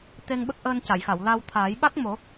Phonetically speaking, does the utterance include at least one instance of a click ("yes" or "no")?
no